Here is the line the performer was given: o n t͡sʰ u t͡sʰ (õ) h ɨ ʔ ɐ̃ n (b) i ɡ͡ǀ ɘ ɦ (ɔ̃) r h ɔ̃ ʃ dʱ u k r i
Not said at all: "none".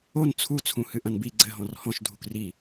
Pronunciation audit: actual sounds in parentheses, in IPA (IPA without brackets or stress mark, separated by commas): ũ, b, ɔ̃